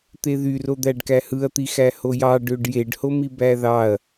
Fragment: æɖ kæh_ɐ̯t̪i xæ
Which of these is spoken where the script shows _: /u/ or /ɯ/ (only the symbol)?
ɯ